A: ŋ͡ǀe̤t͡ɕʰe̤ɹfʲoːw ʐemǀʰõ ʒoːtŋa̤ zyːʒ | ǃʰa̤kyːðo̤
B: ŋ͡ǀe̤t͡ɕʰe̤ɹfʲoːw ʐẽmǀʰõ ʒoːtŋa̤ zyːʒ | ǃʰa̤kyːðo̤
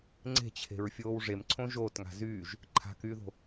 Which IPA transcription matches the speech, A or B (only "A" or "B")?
A